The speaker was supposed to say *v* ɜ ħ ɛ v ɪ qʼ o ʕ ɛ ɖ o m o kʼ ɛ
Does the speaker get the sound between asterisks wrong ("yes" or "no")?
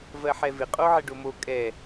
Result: no